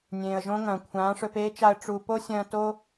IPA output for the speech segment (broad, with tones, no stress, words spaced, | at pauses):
nʲẽː˨ə̯ʒõ˦ŋɐ̃ː˨ kʷʰãː˨˦ʂɵ˧peː˦t͡ʃa˧ə̯ ʈ͡ʂu˨po˦sʲɐ̃ː˧ to˦